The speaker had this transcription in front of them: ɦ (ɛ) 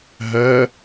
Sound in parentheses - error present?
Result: yes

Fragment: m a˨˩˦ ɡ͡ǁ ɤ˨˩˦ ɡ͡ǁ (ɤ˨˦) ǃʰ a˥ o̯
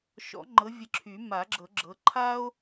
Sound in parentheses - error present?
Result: no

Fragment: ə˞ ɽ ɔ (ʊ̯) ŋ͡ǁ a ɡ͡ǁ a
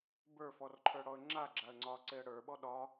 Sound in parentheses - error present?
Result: yes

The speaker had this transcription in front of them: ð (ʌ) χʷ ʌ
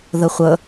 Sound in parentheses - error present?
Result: no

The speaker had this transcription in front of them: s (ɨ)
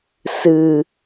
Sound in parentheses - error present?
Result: no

